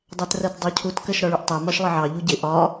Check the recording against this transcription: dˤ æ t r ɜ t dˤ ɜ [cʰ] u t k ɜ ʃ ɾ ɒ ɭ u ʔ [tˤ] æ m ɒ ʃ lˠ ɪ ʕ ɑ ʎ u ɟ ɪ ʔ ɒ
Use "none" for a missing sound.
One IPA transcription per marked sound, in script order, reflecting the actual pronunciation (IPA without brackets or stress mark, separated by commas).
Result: cʰ, tˤ